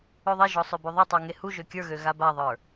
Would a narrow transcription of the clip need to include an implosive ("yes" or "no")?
no